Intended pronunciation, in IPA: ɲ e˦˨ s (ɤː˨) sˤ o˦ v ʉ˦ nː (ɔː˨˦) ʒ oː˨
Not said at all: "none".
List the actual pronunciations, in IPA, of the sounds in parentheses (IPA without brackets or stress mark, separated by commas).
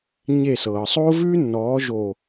ɤː˨, ɔː˨˦